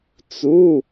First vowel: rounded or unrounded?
rounded